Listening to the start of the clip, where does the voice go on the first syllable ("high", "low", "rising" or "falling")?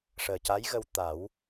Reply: low